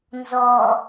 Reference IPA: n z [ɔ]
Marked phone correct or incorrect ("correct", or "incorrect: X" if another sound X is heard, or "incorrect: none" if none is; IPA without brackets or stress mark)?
correct